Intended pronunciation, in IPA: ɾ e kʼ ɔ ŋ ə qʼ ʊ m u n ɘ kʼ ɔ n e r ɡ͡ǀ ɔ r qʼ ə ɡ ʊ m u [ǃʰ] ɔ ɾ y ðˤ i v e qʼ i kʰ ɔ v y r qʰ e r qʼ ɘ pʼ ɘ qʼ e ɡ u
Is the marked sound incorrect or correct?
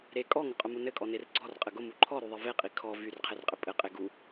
correct